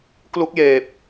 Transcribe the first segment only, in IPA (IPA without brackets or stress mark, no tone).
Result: k